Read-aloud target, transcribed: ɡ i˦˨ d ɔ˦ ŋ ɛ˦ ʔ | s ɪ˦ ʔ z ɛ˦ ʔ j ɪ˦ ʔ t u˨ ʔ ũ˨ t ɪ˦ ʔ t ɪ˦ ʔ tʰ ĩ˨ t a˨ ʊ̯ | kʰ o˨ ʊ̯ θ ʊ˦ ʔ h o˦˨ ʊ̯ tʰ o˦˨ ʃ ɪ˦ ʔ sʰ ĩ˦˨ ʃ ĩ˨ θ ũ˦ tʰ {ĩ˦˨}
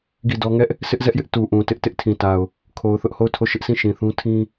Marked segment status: incorrect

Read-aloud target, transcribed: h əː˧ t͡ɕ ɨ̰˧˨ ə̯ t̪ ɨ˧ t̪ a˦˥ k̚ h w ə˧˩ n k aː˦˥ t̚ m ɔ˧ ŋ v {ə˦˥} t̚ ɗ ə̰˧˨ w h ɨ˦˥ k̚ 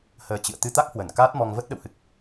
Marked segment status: correct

